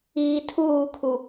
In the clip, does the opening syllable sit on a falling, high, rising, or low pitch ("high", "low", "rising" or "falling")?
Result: low